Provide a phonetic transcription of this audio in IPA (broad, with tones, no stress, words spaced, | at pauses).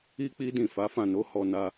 i˦k͡pi˦ dĩ˦˨fa˨˦fã˦˨no˨˦ hɔ˧na˧